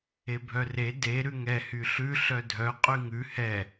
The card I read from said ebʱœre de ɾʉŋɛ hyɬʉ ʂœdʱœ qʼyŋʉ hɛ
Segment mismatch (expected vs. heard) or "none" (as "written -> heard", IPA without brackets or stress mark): ʂ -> ɬ